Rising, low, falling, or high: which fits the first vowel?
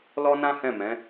high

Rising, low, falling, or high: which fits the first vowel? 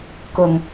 low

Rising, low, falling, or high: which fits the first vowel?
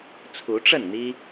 rising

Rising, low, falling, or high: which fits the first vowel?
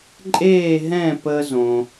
falling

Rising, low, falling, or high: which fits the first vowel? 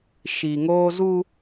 low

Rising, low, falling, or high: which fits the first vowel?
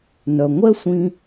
low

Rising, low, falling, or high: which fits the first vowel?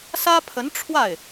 high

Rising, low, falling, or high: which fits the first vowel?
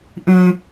low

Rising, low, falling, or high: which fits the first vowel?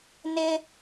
high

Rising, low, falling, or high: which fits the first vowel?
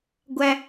high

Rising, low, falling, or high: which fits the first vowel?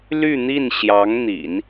falling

